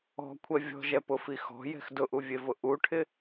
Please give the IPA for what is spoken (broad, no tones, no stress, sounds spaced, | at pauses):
ɔ̤ kʷʰ ɛ vʲ ɔ̤ ʒ ɛ p ʊ f i x ɔ̤ j ɛ̤ x d ʊ ʔ u vʲ e v ʊ ʔ u ʈʰ ɪ